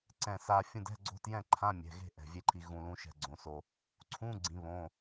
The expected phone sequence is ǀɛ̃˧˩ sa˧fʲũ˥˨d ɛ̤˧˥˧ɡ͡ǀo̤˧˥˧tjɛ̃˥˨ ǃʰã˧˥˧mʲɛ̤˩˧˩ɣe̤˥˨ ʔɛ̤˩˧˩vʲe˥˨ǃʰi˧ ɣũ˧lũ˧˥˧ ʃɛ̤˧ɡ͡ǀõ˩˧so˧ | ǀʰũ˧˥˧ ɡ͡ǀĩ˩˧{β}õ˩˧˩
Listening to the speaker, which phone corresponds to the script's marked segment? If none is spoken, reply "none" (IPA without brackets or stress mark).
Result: β